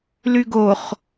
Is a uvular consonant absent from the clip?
no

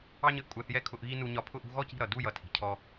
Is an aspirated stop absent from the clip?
no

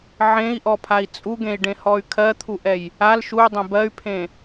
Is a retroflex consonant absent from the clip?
no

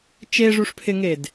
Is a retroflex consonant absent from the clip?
no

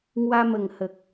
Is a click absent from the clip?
yes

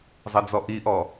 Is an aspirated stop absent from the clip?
yes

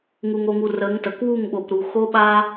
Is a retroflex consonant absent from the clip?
yes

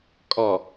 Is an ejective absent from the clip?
no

